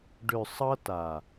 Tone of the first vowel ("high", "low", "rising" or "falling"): low